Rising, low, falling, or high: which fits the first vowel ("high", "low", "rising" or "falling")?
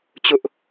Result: high